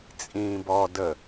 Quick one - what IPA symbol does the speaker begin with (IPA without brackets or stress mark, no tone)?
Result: t͡sʼ